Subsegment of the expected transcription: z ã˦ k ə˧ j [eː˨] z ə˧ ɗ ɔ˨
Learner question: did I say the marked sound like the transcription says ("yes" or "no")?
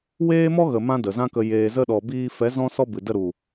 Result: yes